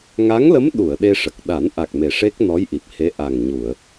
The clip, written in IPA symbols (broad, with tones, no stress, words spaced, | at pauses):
ŋa˧˥ŋlə˧˥m ɗu˨˩˨ə̯ ɗe˧ʂə˨˩k̚ ɗa˨˩˦nʔa˨˩k̚me˨˩ ʂe˦˥k̚ nɔ˧˥jʔi˨˩p̚he˧˥ ʔa˨˩ŋɲu˨˩˨ə̯